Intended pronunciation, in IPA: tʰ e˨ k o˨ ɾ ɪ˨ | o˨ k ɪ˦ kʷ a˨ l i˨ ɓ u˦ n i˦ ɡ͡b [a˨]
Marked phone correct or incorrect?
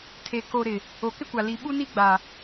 correct